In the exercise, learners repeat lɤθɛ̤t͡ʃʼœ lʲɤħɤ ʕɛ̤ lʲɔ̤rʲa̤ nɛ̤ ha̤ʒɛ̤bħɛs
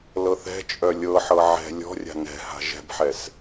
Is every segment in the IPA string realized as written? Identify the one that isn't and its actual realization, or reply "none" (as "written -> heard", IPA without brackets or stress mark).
none